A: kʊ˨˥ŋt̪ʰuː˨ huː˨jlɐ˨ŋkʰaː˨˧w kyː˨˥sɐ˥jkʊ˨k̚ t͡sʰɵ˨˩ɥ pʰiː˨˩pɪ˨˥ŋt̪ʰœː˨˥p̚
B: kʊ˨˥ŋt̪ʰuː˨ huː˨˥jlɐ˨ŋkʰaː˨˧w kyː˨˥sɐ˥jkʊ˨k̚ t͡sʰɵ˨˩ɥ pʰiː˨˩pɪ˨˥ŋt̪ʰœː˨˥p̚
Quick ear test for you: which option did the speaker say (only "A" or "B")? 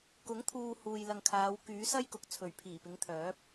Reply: A